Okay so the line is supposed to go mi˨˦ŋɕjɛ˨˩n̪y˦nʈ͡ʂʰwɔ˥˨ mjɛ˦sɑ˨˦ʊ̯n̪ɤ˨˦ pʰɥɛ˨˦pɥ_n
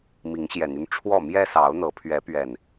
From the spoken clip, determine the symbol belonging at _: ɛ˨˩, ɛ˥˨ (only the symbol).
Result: ɛ˨˩